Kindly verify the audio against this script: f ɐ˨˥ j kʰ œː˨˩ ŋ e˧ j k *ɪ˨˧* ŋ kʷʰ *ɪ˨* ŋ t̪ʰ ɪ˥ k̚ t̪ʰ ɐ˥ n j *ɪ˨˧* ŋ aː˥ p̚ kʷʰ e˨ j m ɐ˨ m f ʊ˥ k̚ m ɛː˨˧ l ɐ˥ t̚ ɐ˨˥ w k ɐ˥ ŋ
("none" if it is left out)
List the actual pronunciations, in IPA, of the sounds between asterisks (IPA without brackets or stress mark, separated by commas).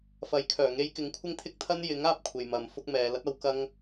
ɪ˨˥, ɪ˥, ɪ˨˥